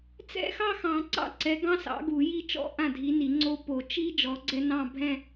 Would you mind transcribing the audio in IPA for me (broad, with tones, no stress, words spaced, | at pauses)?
t͡sɛ̰˥˧xɑ˥˧ xɑ̃˨˩˦ǀɑ̰˥˩ ǀɛ˨˥ɡɑ̃˦˥sɑ̰˨˥ ɡu˨˩˦ji˦˥t͡ʃɔ̰˥˧ ʔã˥˩dʱi˨˥ni˨˩˦ŋ͡ǀo˦˥ po˨˩˦ t͡ʃi˦˥ d͡ʒɔ˨˥ɡ͡ǀɛ˦˥nɑ̃˥˧ bʱɛ̃˥˧